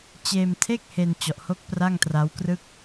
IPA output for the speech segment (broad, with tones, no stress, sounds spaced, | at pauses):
t͡ɕ eː˧ m tʰ e˥˩ k̚ h e˧ n t͡ɕ ɔ˨˩ ʔ h o˦˥ k̚ p r a˥˩ ŋ t r a˦˥ w k r ɯ˥˩ k̚